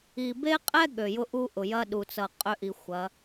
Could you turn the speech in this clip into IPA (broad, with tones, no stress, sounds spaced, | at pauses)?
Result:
i˨ b e˦ qʼ ɛ˦ ɠ ø˨ j ʊ˦ ʔ u˦ ʔ ʊ˨ j ɐ˦ ɗ u˨ t͡s ʌ˨ qʼ ø˦ ʔ i˨ xʷ ɐ˨˦